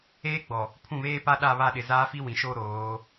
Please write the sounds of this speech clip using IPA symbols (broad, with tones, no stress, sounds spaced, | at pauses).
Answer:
eː˦ ɡ͡b ɔ˨ | pʰ ũ˦˨ β eː˦ p a˦ ɗ a˦˨ β a˦˨ ɗ ɪ˨ z aː˦ f i˦ w ĩ˨ ʃ o˦ ɾ oː˨˦